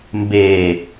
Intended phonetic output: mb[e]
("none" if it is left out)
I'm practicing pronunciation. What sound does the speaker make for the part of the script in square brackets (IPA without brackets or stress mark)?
e